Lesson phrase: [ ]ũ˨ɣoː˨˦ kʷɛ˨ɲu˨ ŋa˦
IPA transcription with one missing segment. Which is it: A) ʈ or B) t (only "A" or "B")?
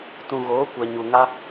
B